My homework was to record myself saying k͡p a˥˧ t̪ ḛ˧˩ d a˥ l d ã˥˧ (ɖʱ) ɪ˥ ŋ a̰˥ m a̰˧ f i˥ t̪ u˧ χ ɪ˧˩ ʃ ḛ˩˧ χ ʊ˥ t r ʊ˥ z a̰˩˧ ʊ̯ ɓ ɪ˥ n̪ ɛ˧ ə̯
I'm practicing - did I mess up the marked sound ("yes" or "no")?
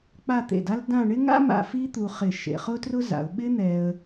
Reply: yes